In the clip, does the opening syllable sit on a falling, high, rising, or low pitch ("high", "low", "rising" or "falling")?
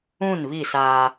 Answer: falling